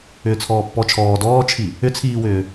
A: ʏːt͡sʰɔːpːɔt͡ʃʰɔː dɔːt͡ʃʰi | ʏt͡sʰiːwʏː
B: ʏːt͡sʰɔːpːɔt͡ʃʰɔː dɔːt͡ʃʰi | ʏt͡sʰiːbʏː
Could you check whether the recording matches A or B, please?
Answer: A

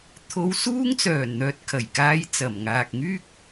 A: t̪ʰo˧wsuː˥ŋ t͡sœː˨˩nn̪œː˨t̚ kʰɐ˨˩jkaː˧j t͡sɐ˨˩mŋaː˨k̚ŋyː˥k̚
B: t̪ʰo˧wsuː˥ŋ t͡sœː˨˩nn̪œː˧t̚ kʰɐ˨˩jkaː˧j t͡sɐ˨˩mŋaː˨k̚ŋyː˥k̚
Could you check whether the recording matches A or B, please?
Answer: A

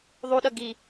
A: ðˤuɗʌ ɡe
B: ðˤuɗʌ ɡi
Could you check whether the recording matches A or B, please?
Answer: B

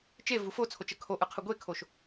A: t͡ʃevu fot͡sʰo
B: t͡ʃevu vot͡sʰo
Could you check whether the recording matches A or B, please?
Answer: A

